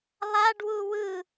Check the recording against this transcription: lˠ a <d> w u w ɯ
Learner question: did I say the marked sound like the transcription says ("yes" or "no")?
no